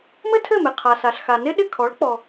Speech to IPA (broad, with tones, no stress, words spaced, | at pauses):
mɘ˥tʰɘ˥˩mɪ˩ qʰa˩sa˩ɬxa˩nɪ˥ ɗɪ˥˩kʰɔ˩˥ɭ k͡pɔ˩